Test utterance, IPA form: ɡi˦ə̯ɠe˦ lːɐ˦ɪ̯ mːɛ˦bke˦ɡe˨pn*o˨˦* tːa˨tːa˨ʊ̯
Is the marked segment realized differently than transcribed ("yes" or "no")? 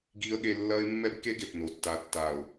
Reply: yes